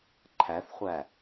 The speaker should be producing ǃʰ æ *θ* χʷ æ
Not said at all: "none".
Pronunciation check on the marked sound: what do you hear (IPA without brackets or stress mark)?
θ